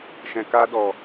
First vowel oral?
no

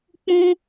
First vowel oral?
no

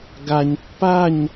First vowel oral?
yes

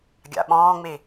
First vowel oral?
yes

